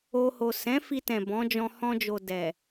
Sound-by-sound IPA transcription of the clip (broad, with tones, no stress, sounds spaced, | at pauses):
o˧ h o˨ s ɛ̃˨˦ f i˧ t ɛ̃˨ b ɔ̃˨˦ d͡ʒ ɔ̃˧ h ɔ̃˧ d͡ʒ o˨ d ɛ˨